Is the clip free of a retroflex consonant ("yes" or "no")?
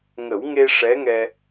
no